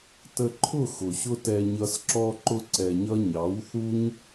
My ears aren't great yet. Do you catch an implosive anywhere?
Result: no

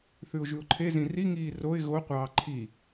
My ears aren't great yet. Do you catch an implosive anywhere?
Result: no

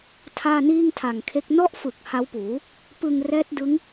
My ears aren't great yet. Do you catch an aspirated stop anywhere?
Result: yes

